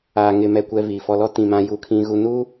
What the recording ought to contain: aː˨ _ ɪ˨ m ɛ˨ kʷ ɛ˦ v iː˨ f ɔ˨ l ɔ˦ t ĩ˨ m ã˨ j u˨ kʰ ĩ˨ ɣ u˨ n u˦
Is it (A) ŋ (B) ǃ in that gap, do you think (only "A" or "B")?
A